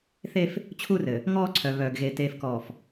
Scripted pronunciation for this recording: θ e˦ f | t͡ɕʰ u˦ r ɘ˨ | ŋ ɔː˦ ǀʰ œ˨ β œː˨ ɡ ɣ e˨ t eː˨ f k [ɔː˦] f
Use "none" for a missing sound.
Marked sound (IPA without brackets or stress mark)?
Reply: ɔː˨